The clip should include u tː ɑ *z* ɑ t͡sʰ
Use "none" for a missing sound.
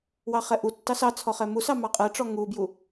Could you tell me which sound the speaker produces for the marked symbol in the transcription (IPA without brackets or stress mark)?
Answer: s